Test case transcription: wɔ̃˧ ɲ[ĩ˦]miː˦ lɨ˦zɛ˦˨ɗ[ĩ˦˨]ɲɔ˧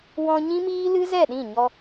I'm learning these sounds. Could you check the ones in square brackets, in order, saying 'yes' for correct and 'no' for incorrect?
yes, yes

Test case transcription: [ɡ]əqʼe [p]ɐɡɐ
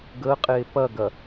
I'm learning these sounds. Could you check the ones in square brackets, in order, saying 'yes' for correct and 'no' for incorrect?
yes, yes

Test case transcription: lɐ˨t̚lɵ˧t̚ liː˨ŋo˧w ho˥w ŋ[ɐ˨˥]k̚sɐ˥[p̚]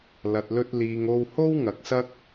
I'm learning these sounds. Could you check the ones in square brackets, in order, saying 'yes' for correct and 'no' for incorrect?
yes, no

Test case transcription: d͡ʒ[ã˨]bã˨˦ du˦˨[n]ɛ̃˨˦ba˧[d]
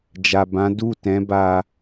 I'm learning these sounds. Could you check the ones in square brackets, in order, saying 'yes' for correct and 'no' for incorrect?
no, no, no

